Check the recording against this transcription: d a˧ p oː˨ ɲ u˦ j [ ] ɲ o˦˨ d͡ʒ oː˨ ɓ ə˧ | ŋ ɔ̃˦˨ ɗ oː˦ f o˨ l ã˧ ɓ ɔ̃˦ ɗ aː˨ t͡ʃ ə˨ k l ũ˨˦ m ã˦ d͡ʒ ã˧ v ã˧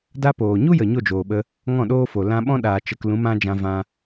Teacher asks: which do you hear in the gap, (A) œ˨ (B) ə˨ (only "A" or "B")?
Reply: B